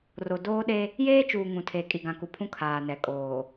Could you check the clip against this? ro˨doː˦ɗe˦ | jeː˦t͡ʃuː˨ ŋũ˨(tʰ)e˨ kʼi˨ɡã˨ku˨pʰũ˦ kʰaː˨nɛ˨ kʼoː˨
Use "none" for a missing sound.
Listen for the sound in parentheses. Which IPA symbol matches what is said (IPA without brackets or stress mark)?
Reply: tʰ